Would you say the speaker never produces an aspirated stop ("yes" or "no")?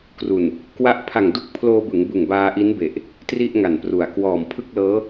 no